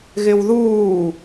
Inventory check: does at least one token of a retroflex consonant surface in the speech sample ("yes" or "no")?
no